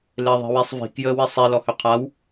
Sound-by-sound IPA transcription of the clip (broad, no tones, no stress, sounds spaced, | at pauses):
l e ðˤ i̤ w e sˤ v i̤ k j əː w i sˤ i l ɔ h ø qʰ a w